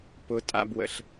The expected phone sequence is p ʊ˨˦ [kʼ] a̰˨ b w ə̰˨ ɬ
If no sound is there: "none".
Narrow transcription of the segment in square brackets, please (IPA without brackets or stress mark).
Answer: tʼ